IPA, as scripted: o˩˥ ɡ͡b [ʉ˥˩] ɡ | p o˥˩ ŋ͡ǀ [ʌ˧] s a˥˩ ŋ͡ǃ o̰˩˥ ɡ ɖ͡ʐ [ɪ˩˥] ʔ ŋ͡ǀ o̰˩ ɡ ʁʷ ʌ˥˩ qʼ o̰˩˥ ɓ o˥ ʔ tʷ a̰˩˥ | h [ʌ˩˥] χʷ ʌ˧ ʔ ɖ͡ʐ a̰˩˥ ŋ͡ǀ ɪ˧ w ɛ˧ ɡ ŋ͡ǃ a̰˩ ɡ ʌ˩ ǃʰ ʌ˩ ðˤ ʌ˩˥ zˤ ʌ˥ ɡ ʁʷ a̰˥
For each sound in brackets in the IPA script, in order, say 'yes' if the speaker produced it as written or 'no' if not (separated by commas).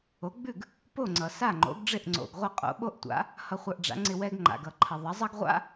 yes, no, no, no